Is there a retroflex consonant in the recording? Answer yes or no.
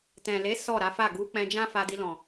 no